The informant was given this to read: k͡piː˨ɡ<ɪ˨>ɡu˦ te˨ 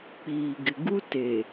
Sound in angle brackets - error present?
no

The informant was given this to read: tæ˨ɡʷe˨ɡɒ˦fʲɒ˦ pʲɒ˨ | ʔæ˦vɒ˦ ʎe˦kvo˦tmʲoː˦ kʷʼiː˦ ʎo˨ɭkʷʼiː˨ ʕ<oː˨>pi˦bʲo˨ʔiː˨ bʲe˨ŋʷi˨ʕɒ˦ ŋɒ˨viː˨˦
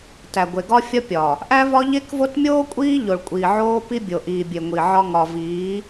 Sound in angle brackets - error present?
yes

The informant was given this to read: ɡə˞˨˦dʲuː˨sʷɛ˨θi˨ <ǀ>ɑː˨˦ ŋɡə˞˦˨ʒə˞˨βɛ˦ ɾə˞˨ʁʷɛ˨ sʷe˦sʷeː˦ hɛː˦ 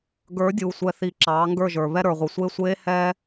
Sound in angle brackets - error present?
yes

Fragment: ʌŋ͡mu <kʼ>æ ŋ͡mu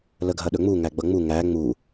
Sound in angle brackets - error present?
yes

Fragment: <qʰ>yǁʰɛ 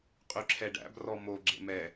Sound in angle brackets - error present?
yes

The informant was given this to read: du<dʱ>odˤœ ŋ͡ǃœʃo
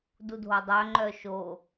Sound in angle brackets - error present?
no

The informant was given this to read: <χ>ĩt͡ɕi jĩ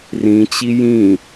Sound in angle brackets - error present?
yes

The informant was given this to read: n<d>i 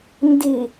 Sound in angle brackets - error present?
no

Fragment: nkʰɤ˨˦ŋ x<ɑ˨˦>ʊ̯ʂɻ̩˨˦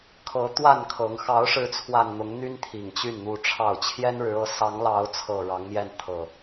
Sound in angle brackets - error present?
no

